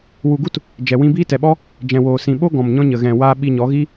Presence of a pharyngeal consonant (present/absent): absent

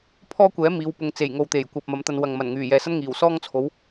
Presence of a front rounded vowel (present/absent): present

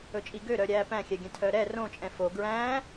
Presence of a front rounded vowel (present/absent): present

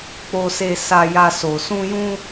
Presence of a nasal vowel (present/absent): present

